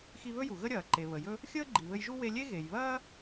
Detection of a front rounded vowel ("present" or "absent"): absent